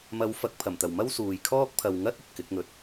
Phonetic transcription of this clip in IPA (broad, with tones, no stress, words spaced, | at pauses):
mɐ˨˧wfɐ˨k̚pʰɐ˨˩mt̪ɐ˨˩w mɐ˥wsuː˨jkʰɔː˥k̚ pʰɐ˨wŋɐ˥t̚ ɵ˨t̚kɪ˨˥k̚ŋɵ˨t̚